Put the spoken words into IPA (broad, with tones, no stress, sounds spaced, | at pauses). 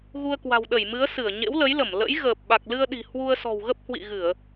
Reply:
ɣ u˧ ə̯ k w a̤˨˩ w ɗ ə˧˩ j m ɨ˨˦ ə̯ s ɨ˧˩ ə̯ ɲ ḛ˧˥ w l ə˨˦ j l ə˧˩ m l ə̰˧˥ j ɣ əː˨˩ p̚ ɓ a˨˩ k̚ l ɨ˧ ə̯ ɗ i̤˨˩ h w u˧ ə̯ s ɔ̤˨˩ w ɣ ə˦˥ p̚ h w ḭ˧˨ ɣ ɨ˧˩˨ ə̯